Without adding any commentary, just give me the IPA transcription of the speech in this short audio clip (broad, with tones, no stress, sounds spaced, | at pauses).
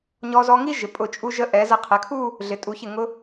ɲ ɔ˧ z ɔ˧ ŋ i˥ ʒ ɪ˩˧ pʼ ʊ˧˩ t͡ʃʼ u˧ ʒ ə˧ ʔ ɛ˩˧ z ə˧˩ qʰ ɪ˩˧ kʰ u˥˧ | ɮ ɪ˩˧ tʼ u˩˧ ç ɪ˧˩ ŋ ʊ˧